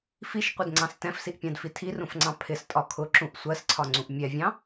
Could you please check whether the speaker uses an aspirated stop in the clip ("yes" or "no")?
yes